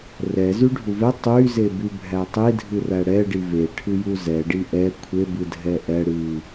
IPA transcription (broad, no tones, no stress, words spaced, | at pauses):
rɛzy ɖʱuvɛ tˤyzeby bʱætˤidʱɨræ ɽɛɖi ve ʈʰɨjuzɛ ɖiʔɛ kʷʰebɨdʱɛ ʔɛ ɽɨ